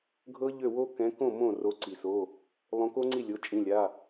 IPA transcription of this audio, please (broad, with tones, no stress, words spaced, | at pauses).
ɡʱɤ˦˥ʎø˥˩wo˦˥ kɛ̃˨˦kõ˥˩ mõ˥˩ro˨˦ǀi˩so˩˧˩ | lˠõ˨˦ko˦˥ŋ͡ǀi˥˩ lʲo˩˧˩t͡ʃʼĩ˩˧˩ lʲa˩˧˩